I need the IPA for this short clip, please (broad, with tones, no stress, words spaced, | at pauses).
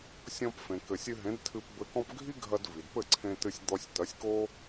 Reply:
sʲɔ̃˧pfẽ˩ kɘ˩sʲɨ˧ɦẽ˩˥d tʰɨ˧pbɘ˧kɔ̃˥p ɡʱi˥ɡʱɐ˧d vi˩dpɘ˥˩ ǀʰẽ˧tɨ˧sʲ d̪ɔ˧sʲtɐ˩˥sʲko˥